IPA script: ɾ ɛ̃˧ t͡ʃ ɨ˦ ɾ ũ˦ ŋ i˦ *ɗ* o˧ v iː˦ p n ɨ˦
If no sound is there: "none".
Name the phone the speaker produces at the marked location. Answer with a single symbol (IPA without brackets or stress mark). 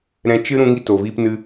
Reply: t